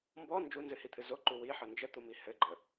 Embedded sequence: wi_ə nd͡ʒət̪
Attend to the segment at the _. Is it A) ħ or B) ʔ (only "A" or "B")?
A